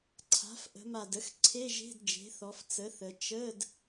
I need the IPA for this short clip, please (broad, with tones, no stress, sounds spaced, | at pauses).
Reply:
ǀʰ a̤˩˥ f ʔ ə̤˩˧ m a˨˩ d ə˩˥ x ǀʰ e˧˥˧ ʒ e̤˧˥˧ d d͡ʒ e̤˩˥ θ ɔ˩˧ f t͡s ə˩˥ θ ə˩˧ t͡ʃ ə˧˥˧ d